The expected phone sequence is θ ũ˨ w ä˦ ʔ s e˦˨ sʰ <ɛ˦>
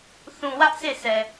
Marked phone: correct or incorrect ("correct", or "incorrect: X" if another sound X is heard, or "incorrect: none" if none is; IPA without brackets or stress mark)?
incorrect: ɛ˨